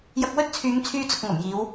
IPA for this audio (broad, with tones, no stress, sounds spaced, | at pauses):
j ɐ˧ k̚ w ɵ˥ t̚ t͡sʰ yː˨˧ ŋ t͡sʰ yː˥ t͡s ʊ˧ k̚ ŋ ɐ˨˩ m j iː˨˧ w